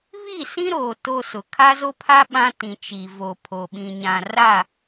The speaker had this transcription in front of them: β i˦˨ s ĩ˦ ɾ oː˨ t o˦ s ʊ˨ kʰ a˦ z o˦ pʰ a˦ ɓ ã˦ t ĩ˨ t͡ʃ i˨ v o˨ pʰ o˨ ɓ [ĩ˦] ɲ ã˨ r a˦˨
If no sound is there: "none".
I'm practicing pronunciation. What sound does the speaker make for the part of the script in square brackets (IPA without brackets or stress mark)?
ĩ˨